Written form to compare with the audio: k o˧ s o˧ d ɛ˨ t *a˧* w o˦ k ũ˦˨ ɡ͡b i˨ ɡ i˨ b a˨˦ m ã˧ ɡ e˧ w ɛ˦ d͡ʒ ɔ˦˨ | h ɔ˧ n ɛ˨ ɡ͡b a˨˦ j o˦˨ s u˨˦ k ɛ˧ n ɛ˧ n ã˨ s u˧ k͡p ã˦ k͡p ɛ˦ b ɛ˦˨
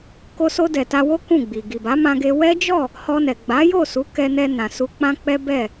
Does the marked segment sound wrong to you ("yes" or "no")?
no